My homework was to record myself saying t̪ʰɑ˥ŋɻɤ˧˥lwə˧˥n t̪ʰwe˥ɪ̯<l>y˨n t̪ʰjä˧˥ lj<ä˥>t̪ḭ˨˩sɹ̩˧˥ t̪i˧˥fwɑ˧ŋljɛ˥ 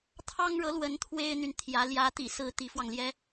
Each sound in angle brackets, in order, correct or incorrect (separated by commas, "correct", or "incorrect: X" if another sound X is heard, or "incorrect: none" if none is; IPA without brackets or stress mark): incorrect: n̪, incorrect: ä˧˥